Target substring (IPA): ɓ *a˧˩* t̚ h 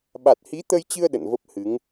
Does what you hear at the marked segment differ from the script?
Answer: yes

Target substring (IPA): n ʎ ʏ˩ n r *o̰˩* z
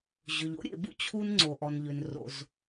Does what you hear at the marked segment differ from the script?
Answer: no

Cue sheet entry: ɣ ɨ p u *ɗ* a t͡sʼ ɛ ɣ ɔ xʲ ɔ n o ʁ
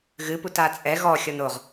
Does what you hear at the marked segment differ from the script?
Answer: yes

